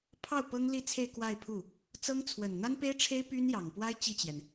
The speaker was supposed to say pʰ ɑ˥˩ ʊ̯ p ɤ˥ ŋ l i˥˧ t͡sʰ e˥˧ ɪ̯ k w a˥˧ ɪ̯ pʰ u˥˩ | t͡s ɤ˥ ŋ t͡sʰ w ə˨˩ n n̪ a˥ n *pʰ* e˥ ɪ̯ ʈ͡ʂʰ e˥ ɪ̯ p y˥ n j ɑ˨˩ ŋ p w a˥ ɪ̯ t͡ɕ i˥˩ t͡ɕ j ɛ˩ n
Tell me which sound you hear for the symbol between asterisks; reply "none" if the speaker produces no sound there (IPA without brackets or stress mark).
p